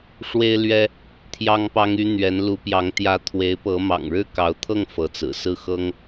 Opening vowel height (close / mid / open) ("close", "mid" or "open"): mid